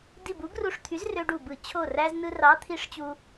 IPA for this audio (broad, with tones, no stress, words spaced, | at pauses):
di˧˩bu˨˥ɡru˧˩ʂt̪ʰy˨˥z rø˧ɖu˧˩bɯ˧˩˧ t͡ɕʰo˧˩ræ˧z nɯ˧rɑ˨˥t̪ʰi˨˥ʂt͡ɕu˧